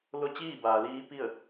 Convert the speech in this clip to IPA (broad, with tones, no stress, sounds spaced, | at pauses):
l o˧˥ t͡ɕ iː˥˨ b aː˩ l iː˧˥ p i˥˨ ə̯